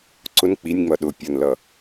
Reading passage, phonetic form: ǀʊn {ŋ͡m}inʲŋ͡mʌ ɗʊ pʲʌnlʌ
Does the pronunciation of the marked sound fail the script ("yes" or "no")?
yes